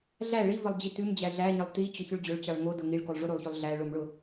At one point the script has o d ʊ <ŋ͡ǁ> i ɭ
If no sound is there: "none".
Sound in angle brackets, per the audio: ŋ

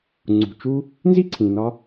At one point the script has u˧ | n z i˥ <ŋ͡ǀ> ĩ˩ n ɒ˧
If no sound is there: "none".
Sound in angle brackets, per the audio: ǀʰ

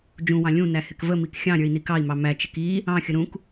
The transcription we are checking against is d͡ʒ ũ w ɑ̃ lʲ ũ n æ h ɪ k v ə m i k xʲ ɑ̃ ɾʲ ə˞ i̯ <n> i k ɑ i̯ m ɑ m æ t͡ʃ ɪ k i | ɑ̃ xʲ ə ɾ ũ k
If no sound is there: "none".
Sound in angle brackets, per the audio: n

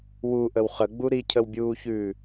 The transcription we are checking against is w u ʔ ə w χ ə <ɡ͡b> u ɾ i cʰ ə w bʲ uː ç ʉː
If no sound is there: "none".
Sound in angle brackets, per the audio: ɡ͡b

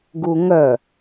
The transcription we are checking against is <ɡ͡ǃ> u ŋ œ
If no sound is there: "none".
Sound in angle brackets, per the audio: ɡ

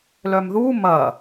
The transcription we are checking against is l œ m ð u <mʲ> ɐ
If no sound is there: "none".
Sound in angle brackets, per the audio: m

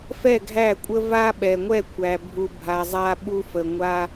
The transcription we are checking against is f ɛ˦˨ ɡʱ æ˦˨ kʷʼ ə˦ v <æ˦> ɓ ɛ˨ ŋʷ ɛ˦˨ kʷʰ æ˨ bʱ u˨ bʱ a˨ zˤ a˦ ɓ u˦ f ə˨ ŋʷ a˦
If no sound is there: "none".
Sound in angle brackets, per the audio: a˦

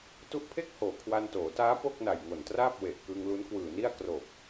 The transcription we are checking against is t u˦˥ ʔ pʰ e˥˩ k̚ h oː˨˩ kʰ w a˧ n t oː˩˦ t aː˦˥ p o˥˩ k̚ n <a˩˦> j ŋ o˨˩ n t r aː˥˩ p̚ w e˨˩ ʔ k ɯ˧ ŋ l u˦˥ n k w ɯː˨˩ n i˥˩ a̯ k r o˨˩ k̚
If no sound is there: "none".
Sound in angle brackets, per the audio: a˨˩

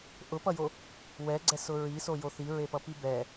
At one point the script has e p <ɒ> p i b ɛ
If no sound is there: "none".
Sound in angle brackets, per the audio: ʌ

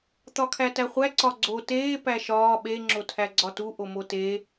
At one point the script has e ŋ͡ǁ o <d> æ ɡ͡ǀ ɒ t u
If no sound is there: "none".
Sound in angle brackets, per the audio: tʰ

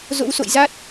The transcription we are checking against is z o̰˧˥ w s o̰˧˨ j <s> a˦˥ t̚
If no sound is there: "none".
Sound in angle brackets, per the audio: z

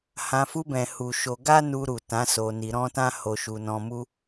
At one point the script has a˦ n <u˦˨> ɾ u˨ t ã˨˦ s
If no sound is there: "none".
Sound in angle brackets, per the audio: u˧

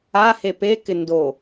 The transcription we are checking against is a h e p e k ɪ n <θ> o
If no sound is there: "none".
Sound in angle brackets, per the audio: d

